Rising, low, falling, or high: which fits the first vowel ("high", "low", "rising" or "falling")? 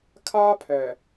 high